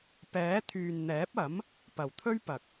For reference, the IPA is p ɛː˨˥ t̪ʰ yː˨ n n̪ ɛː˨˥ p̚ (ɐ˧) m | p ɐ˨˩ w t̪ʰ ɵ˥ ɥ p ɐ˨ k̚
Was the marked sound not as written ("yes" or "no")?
yes